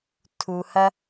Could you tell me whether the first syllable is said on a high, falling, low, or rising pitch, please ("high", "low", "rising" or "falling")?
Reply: low